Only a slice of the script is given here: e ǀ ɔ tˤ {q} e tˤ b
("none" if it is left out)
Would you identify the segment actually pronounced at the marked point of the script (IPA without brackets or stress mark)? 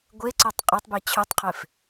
qʼ